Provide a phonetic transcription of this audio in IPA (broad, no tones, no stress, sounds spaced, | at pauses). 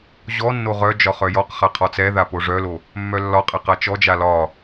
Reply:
ʑ ɔ nː o ʁ œ d͡ʒ ɒ χ œ j ɔ q χ a qʰ ɒ t͡s ɛ ð a p o ʐ œ l o | mː œ lː ɒ qʼ ɛ q a t͡ʃ ɔ d͡ʒ a l ɒ